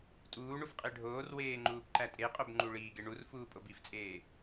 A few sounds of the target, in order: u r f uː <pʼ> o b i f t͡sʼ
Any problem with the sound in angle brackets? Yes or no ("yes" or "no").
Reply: no